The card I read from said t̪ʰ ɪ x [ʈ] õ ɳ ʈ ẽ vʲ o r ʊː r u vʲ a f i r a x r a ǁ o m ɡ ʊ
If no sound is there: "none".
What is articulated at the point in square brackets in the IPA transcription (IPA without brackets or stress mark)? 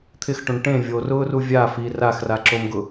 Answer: ʈ